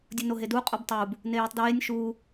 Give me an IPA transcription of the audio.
dʲunoɦedu qʼubtˤub | nejitˤdɹenʲ ʃu

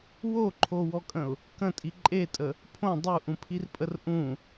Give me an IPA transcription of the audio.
woǃʰowɔkʼə̃ʊ̯ | kə̃tʼi ǃʼetʼə | pʰõ dˤuʔũpʰirpʼər ʔũ

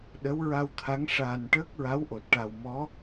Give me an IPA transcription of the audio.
ɗə˧˥wɹa˧wt̪ʰa˧˥ŋ ʂaː˨˩nʈəː˦˥k̚ɹa˧˥w ʔo˨˩t̚ʈa˨˩wmɔ˧˥

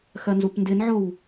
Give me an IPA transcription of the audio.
xɜnzupndɪnʕow

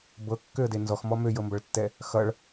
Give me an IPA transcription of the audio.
bɤkːøə̯de nzɔxmɔ møjɤmbʌɭtːɛ | xʌɭ

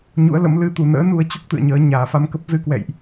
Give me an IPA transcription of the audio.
ɲṵ˧˥ə̯lə̰˧˥m lɨ˨˦t̪u˨˩ nə̰ː˧˥nu˧ə̯t͡ɕu˦˥k̚ t̪ɨ̰˧˨ə̯ɲəː˨˦ ɲaː˨˩fa˧mkə˦˥p̚ zɨ˧kwɛ̰˧˨jʔ

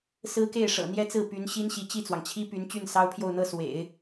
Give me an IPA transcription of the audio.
sɹ̩˥ke˥˩ɪ̯ ʂɤ̰˨˩n̪jɛ˥t͡sɹ̩˥˩ py˧˥n ɕi˥nɕi˧˥t͡ɕi˥˩t͡swɑ˩ŋ t͡ɕʰi˥py˧˥n t͡ɕy˥˩nsɑ˥ʊ̯pʰjo˥˧ʊ̯ n̪ɤ˥˩swḛ˨˩˦ɪ̯

